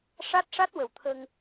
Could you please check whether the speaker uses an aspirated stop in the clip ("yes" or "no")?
yes